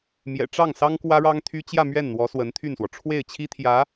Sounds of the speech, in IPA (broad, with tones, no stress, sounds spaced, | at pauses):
m j ɛ̰˨˩ ʈ͡ʂ ɑ˥˩ ŋ s ɑ˥ ŋ k w ä˥ ɻ ɑ˥ ŋ t̪ʰ y˥ t͡ɕ j ä˥˧ m ɥ ɛ˥˩ n n̪ w ɔ˧˥ s w ə˧˥ n t̪ʰ y˥˩ n s w ɔ˩ ʈ͡ʂʰ w e˥˩ ɪ̯ t͡ɕʰ i˥ t̪ʰ j ä˧˥